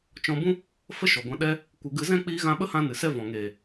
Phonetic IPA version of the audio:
t͡ʃ ɔ̃˧ b ũ˦ | f ə˦ ʃ ɔ˨ ɡʷ ã˧ ɗ ɛ˧ | kʷ ɨ˧ ɡ ɨ˧ z ɛ̃˦ k͡p iː˧ ɣ ã˧ ɓ ə˦ h ã˧ n ɨ˨ s ɛ˦ v ɔ̃˨ ŋ eː˨

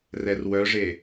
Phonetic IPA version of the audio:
r ɛ r w œ ʐ e

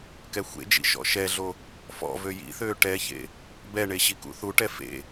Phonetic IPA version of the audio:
k ɛ xʷ ḛ d͡ʒ ḭ ʃ ɔ̰ ʃ ɛ ɮ o | f ɔ̰ v ø j ḭ θ øː ʈ ɛ ç ḛ | b ɛ ɳ e ɕ i k ṵ θ u ʈ ɛ f ḛ

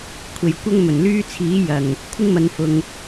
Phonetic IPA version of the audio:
kʷʰ e˨˧ j kʷ ɐ˥ ŋ m ɵ˨˩ n l yː˥ t͡sʰ iː˨˥ j ɐ˨˩ ŋ | kʷʰ ɪ˥ ŋ m ɐ˨˧ n f ʊ˨ ŋ

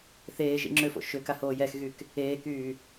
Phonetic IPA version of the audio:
θ eː ʒ ḭ ŋ͡ǁ ʏ f o̰ ʃ ʏ k a h oː j ɛ x ɣ y k | eː k yː

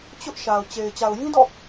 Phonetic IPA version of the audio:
t͡ɕ ʊ˦ ʔ ʃ a˨ ʊ̯ t͡ɕ e˨ ɪ̯ t͡ɕ a˨ ʊ̯ j ĩ˦ d ɔ̰˦˨

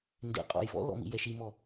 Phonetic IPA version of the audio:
n d ḛ qʼ ɔ̰ j v ɔ̰ l ɔ̰ m ḭ j ɛ ʃ i m ɔ

